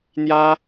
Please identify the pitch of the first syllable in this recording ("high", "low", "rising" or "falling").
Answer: high